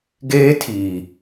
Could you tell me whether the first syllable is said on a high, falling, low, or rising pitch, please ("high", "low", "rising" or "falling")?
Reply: high